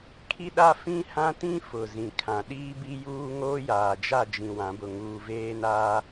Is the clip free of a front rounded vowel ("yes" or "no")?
yes